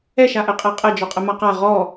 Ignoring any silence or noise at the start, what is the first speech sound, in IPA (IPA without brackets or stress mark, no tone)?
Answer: ɛ